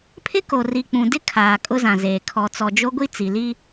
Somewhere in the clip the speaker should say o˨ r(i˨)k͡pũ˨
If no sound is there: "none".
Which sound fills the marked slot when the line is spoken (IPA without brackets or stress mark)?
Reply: i˨